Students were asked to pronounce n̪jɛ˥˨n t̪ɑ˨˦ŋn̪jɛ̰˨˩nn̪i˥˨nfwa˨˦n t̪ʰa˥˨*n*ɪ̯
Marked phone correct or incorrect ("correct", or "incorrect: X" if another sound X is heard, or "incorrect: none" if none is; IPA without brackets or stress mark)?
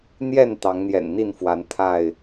incorrect: none